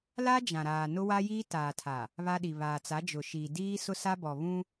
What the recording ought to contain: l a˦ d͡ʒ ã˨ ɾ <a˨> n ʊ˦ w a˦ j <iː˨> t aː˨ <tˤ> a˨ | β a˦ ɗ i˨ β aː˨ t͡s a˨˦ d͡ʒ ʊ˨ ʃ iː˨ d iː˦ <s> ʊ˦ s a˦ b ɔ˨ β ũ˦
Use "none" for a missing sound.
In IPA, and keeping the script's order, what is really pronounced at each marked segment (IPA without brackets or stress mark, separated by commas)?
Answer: aː˨, iː˦, tʰ, s